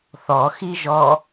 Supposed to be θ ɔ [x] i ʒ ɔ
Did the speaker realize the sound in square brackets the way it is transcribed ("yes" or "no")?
yes